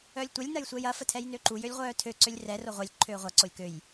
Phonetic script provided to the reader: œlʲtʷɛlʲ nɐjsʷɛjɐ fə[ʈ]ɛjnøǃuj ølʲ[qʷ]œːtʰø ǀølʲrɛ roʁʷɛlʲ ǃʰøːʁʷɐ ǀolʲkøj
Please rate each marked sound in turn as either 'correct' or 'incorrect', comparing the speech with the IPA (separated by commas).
incorrect, incorrect